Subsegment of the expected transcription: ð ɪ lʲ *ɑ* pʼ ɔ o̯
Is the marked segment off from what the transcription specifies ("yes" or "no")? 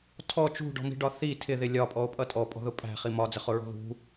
yes